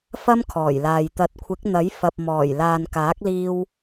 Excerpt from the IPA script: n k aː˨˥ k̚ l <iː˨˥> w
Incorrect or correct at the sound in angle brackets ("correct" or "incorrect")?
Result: incorrect